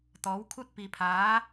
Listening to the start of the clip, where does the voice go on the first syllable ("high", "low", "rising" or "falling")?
rising